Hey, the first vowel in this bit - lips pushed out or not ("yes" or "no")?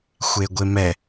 no